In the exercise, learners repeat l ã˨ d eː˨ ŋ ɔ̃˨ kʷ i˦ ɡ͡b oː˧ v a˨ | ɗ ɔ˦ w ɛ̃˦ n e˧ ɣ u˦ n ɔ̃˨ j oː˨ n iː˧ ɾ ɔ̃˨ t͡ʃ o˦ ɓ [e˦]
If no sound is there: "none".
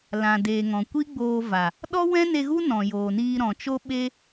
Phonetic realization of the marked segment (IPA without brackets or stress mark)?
e˦